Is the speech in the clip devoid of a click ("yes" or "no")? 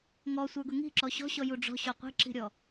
no